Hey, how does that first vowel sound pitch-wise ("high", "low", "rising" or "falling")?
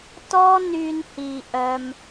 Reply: high